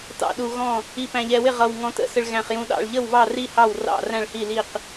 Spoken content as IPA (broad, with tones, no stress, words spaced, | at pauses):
tɑ̰˥˨ɗu˧ɣɔ̃˥˨ | i˧pæ̃˧ʎɛ˧wɪ˥˨ ʁʌ˧w ŋɔ̃˧tə̰˧sə˧ɭ ɣæ̃˧χjũ˧ ɗɑ̰˥˨ɭʎə˥˨wβɑ˥˨ri˥˨ hɑ˥˨wrɑ̰˥˨ræ̃˥˨ɭhi˥˨ li˥˨q